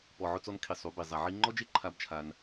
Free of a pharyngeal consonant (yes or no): no